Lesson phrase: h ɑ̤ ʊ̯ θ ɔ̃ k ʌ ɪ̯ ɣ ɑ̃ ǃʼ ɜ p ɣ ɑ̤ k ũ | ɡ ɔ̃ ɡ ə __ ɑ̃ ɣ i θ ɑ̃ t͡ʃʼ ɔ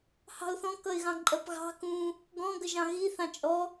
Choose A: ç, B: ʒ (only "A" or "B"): B